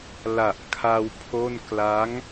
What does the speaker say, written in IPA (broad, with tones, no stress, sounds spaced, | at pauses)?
l a˨˩ ʔ kʰ a˧ w pʰ o˥˩ n k l a˦˥ ŋ